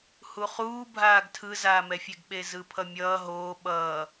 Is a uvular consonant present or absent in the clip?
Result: present